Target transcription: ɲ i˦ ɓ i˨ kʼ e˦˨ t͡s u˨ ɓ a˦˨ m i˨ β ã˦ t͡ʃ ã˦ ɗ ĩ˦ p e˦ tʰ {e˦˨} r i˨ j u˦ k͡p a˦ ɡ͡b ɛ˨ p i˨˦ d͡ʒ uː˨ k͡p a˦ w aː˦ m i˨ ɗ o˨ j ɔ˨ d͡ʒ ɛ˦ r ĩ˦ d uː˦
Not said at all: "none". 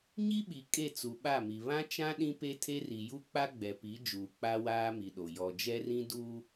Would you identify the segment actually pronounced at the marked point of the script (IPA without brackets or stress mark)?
e˦